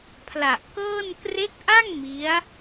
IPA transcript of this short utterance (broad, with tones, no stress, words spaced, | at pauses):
pʰla˨˩ʔkɤː˥˩n kre˦˥k̚ʔa˥˩ŋ mi˦˥a̯